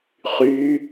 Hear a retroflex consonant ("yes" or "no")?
no